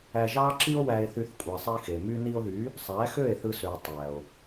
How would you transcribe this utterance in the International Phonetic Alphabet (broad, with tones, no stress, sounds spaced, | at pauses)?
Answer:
æ˧ ʒ ɑ˦ ǁ i˦ o̯ w æ˦ e̯ θ y˦ θ kʷʼ æ˧ sˤ i˧ x e˨ m y˧ n i˧ o̯ ð y˨˦ | sˤ æ˨˦ x ø˦˨ e̯ θ ɯ˦ s ø˧ o̯ tˤ æ˨ o̯